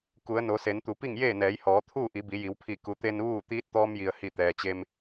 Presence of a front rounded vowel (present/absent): absent